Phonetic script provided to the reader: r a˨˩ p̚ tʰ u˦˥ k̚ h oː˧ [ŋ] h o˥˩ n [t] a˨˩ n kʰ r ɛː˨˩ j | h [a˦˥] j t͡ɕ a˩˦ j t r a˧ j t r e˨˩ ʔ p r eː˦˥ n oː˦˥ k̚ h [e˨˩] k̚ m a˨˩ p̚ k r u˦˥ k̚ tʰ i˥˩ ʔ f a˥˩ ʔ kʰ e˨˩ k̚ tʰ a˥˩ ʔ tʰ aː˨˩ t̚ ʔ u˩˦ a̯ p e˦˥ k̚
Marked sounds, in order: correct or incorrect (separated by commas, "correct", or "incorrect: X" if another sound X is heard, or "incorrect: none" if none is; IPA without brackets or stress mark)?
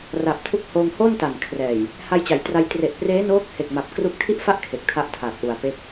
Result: correct, correct, incorrect: a˧, correct